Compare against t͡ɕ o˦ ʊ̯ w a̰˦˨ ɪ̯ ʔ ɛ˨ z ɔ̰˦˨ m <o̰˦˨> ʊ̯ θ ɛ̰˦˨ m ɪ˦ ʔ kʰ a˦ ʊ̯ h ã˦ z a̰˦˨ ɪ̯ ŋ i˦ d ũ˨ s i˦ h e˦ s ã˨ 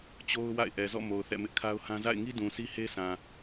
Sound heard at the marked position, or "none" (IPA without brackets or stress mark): o˨